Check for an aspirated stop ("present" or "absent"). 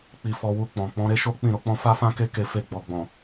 absent